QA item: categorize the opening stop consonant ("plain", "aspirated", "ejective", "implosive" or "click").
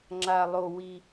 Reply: click